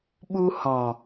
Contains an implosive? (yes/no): yes